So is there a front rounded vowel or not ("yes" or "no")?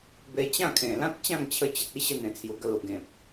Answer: no